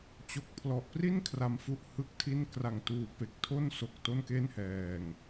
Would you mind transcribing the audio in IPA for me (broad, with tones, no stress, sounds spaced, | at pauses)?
t͡ɕ o˨˩ k̚ pʰ l ɔ˨˩ ʔ p r i˥˩ n kʰ r a˧ m f u˥˩ ʔ h ɯ˥˩ k̚ tʰ i˥˩ n k r a˨˩ ŋ t uː˨˩ p e˨˩ k̚ tʰ o˥˩ n s o˨˩ k̚ t o˥˩ n k e˥˩ n h ɛː˨˩ ŋ